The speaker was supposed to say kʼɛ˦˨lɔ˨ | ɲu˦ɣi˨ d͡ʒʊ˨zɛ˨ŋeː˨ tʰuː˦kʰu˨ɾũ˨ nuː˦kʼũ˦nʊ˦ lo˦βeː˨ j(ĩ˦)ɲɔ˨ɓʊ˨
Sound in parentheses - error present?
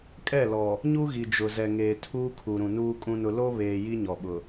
yes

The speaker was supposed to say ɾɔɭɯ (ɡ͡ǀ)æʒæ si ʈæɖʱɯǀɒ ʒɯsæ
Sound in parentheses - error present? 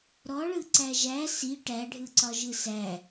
yes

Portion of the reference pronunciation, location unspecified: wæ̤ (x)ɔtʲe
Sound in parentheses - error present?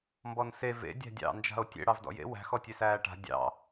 no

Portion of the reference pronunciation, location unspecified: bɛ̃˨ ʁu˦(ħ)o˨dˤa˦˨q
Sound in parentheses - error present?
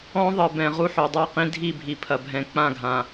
no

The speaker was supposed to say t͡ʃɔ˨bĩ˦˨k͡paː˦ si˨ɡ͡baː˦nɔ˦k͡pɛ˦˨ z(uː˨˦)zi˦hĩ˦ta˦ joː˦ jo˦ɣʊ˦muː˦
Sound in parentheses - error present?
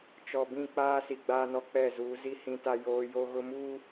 no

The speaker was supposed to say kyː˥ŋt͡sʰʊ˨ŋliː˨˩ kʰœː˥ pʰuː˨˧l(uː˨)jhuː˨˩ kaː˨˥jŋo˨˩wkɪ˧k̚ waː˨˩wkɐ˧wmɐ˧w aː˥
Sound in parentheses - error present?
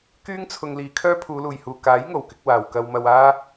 yes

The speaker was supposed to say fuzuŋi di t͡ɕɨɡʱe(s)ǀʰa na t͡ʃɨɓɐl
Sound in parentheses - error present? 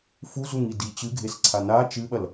no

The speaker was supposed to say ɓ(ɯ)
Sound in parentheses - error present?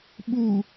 yes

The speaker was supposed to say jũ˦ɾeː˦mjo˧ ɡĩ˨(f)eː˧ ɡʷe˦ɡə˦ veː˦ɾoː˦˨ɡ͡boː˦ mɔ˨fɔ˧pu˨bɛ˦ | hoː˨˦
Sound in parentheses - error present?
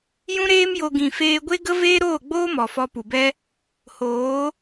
no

